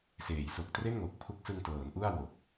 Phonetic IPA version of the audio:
seː˩˦jso˨˩k̚tre˥˩n ŋo˨˩k̚pʰu˦˥k̚sɯ˧ŋtɤː˩˦n ʔu˥˩a̯wo˨˩k̚

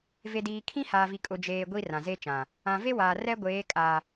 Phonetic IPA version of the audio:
ve˨diː˨ kʰĩ˦haː˨vi˨ kʼʊ˨d͡ʒeː˨ ɡʷi˦rã˨ze˦t͡ʃã˨ | ã˨ve˦waː˨ rɛ˦ɡʷeː˨˦kʼa˨

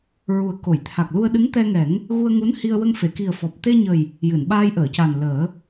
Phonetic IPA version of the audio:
ɹu˨˩ə̯ ko˨˩˨j t̪ʰa˨˩k̚lu˧ə̯ɗɨ˧˥ŋ t̪ɛ˧ŋɛ˨˩˦ŋ | ɣu˧ə̯ŋu˧˥nhi˧ə̯ wə˧ŋfe˨˩˨ki˨˩ə̯fɔ˨˩p̚ t̪e˧ɲə˨˩j | jɨ˨˩˨nɓaː˧jʔəː˨˩˨ca˨˩n ləː˨˩˦

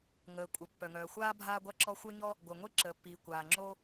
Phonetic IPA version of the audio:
ŋəː˩ kʷʼə˩ pːœ˩ŋœː˩xʷaː˥ bʱaː˥ɡʷa˥ǁɔ˥ xʷœ˥ɲɔ˥ | ɡʷœ˩ŋʷe˥ǁəː˩pːiː˩ kʷaː˩ŋ͡ǁoː˥

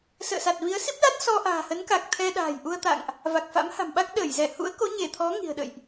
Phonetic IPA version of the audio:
sə̰ː˧˨sa˨˩t̚vi˨˦ə̯ si˦˥p̚la˦˥t̚ sɔ˧ʔa̤ː˨˩hə˨˦nka˨˩k̚ t̪ʰɛ˧ ɗa̤ː˨˩jʔu˧ə̯t̪a̰˧˨ŋʔ | va˨˩k̚ fa̰˧˥mha̤˨˩mɓa˦˥k̚ ɗəː˧˩jzɛ˧˩ hṵ˧˥ə̯ko˨˦ɲe˧˩t̪ʰɔ˨˦ ŋi̤˨˩ə̯ɗə̰˧˨jʔ

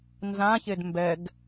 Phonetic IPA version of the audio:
nzãçed mbɛɡ

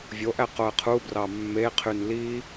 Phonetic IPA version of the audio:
vʲoʔæ qoə̯qʰubrɑ mːeqʰyn li

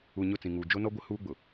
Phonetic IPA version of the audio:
u˨ ɲʊ˦˨t͡sĩ˨ŋuː˨ d͡ʒo˦nɔ˦ɡʷɪ˦ huː˦ɡ͡bʊ˨

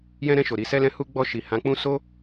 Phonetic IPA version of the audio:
jɛ̃˧ɾɛ̃˧ʃo˨ ɾi˨sɛ˧lɛ̃˧ hu˧ɡ͡bɔ˧ʃi˨ hã˨˦k͡pũ˦ so˦

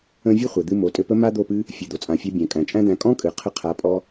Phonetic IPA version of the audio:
ə̃˧ vʲɨ˦χʷɘ˨d̪ɨ˧ mo˨˦tʼɘ˧pə˦ ma˦d̪o˦˨pɨ˦ | fʲɨ˨d̪o˨t͡sʼã˨fʲa˧ bʲæ̃˨kʼæ̃˨t͡ʃʼæ̃˦d̪æ̃˧ kʼɔ̃˦kʼɨ˨ qʰə˧qʰa˨˦ pʼɔ˧

